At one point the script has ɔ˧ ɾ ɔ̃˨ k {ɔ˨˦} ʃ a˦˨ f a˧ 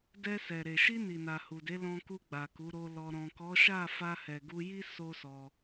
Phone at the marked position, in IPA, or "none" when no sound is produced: ɔ˨˦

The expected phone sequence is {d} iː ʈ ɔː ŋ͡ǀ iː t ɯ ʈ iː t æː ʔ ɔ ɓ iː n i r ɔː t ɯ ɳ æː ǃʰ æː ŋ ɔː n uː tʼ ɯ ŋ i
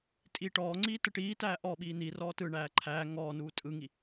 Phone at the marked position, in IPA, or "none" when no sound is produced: tʼ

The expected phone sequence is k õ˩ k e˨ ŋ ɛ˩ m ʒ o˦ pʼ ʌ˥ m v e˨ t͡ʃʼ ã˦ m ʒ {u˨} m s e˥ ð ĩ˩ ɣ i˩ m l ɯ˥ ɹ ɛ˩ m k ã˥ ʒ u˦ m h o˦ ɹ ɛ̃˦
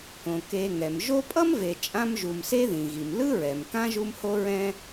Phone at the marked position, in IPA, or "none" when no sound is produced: u˨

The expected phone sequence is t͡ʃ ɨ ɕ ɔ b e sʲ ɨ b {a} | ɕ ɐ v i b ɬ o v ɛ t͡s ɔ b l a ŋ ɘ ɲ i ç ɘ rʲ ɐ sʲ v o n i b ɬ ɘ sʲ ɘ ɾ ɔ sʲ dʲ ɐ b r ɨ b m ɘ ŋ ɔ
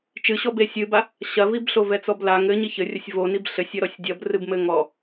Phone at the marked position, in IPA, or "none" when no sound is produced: a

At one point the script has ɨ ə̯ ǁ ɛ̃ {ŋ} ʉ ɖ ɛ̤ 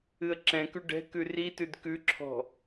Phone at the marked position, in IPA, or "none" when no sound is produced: k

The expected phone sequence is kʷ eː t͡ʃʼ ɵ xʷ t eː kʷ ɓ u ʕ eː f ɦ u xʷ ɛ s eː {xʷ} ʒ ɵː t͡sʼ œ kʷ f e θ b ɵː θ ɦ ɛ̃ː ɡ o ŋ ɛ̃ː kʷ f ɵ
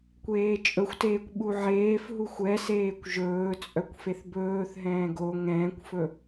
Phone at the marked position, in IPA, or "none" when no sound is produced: kʷ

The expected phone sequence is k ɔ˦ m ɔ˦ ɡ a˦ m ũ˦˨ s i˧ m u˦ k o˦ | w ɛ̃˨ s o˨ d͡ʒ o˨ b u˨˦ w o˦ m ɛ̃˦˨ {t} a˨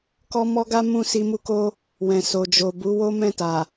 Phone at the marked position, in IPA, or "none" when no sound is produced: t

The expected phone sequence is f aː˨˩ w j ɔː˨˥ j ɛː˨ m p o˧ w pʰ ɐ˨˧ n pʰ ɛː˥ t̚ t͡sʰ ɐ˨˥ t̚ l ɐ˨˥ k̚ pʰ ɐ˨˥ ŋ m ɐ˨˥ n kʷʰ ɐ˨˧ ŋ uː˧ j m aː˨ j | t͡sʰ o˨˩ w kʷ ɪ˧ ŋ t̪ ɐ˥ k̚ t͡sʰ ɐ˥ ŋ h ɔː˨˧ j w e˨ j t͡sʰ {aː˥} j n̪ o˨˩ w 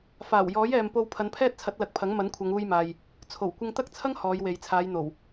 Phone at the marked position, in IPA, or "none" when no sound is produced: aː˨˧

